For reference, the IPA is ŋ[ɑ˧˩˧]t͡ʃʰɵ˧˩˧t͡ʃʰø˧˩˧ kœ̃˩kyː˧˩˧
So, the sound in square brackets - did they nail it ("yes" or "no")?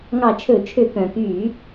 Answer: yes